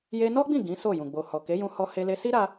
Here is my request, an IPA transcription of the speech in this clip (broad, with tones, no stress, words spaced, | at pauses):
je˧nɔ˦ɡ͡bĩ˦˨ ɡĩ˨˦so˦˨jũ˨ ɡ͡bo˨hɔ˨ke˨˦ jũ˧hɔ˧he˧le˧ si˦ɾa˧